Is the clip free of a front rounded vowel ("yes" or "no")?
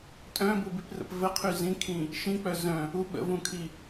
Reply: no